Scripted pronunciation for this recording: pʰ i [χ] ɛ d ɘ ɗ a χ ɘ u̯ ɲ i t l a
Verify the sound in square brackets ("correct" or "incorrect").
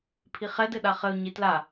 correct